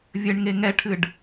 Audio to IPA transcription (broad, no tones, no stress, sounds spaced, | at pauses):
vʲ ɘ ɳ ŋ e ŋ ɛ ʈʰ ɨ ɖ